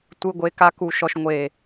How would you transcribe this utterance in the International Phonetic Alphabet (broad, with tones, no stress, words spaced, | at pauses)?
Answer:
tʷɯ˧ɡʷe˧ ka˦ku˧ʃɔ˧ʃ ŋʷe˨